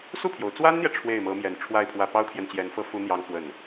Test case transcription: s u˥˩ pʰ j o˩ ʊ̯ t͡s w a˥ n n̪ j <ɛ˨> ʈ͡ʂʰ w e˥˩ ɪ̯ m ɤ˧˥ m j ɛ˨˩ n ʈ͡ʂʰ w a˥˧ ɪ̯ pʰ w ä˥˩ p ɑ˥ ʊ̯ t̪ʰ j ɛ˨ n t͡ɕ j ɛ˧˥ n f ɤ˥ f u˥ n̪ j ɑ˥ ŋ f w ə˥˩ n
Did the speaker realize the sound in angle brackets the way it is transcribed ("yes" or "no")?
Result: yes